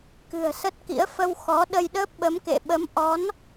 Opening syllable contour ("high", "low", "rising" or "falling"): low